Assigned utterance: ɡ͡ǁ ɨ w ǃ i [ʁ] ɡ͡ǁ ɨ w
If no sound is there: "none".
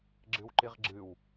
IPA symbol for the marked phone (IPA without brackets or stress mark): ʁ